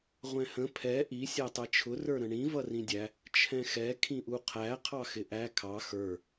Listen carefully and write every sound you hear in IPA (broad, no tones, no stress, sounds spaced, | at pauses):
ʁʷ ɛ̃ h ə̃ pʰ ɛ ʔ i sʲ æ tˤ ɛ t͡ʃʰ ʊ r ə˞ ɾ ə̃ ɳ ĩ v ʌ r ĩ dʲ æ | t͡ʃʰ ɛ̃ x ɛ kʰ ĩ ʔ u qʰ æ qʰ ɑ x ɪ ʔ æ kʰ ɑ x ə˞